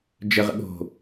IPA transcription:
d͡ʒ ə ʁ ə̰ ɠ o̤

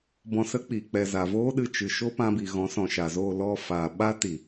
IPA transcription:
b ɔ̃˧ s ə˦ k͡p i˨ k͡p ɛ˨ z a˨ v oː˦ ɗ ɨ˧ t͡ʃ ɨ˨ ʃ o˦ p ã˧ b i˨ ɣ ɔ̃˨˦ s ɔ̃˨ ʃ a˨ z oː˦˨ l ɔ˦˨ f aː˨ ɓ a˦ t i˨

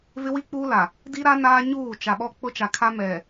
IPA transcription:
v ɪ˦ w i˦ k͡p uː˦ l a˨ | d i˦ ɾ a˦ n aː˦ ɲ uː˦˨ t͡ʃ a˨ ɓ ɔ˦ k͡p ʊ˦ t͡ʃ a˨ kʰ a˦ m ɛ˨

